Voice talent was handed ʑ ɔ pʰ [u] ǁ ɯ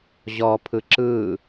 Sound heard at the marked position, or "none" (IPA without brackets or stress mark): ɯ